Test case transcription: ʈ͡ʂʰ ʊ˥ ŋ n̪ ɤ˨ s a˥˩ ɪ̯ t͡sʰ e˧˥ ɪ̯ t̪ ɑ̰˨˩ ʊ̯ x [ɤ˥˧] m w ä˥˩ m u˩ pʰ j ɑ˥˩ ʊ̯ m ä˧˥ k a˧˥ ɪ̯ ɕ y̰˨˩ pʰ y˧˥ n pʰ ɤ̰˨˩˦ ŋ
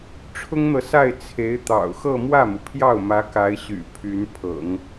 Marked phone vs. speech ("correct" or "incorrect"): correct